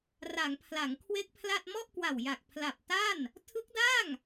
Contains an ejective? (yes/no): no